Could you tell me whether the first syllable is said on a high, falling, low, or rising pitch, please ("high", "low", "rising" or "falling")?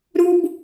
high